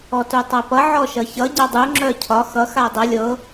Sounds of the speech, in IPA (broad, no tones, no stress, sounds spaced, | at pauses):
ɔ t u tˤ ʌ p ʌ ʕ ɔ ʃ ʌ ç ʌ ɟ a dˤ u ŋ͡ǁ œ cʰ ɒ x ʌ x a dˤ ʌ lʲ ɤ